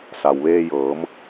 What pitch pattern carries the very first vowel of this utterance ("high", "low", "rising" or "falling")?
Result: low